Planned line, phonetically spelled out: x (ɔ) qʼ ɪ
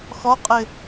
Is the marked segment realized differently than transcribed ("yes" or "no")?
no